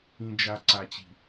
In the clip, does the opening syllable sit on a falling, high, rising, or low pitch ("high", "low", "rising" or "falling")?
low